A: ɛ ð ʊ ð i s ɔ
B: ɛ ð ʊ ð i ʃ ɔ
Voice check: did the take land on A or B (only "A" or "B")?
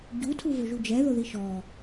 B